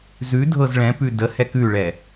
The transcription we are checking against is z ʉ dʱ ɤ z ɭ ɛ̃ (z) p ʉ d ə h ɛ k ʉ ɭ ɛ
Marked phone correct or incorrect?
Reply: incorrect